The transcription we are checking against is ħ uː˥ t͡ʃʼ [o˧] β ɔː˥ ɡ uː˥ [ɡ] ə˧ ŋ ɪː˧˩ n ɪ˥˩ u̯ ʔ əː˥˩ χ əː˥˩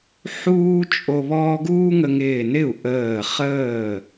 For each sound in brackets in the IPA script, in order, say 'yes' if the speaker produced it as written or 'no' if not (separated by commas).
yes, no